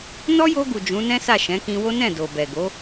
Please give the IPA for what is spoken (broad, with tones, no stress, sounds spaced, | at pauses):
n ɔ˦ j o˧ ɡ u˨ d͡ʒ ũ˨˦ n ɛ̃˦ s a˦˨ ʃ ɛ̃˨˦ k ĩ˧ w o˦ n ɛ̃˦˨ d o˨ b ɛ˨ ɡ o˨˦